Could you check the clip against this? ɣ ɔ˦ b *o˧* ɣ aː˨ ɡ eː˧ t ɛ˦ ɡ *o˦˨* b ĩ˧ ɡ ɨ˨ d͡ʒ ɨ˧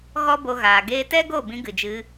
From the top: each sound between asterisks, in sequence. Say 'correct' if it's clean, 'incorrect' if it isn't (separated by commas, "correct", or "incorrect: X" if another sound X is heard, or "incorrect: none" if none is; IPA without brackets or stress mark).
correct, correct